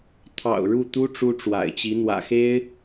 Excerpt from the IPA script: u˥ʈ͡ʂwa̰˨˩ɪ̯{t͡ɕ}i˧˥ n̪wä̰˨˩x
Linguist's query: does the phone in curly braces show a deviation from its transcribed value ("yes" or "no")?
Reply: no